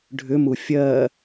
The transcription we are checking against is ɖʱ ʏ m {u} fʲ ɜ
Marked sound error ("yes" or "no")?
no